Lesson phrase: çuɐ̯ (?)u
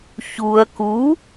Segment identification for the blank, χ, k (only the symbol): k